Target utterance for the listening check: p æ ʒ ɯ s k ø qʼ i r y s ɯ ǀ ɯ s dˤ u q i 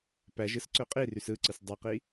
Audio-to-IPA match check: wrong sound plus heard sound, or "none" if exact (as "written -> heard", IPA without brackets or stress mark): k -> ǀ